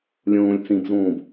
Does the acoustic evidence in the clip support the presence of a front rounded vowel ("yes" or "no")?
no